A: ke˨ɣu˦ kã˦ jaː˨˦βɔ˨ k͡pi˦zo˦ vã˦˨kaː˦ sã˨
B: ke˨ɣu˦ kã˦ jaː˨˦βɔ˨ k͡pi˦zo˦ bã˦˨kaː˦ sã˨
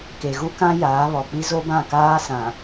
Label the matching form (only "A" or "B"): B